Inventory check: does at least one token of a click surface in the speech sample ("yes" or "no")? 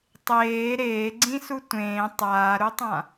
yes